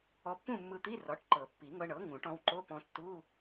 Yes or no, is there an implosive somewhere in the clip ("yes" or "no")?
no